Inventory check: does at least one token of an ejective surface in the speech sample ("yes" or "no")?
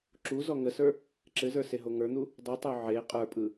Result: yes